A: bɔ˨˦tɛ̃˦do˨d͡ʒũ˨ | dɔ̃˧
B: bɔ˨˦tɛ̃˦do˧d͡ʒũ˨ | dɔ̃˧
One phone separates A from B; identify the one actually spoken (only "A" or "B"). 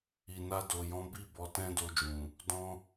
B